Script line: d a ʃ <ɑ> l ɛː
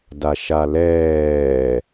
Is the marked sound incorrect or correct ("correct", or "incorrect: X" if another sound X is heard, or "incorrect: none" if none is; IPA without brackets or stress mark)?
incorrect: a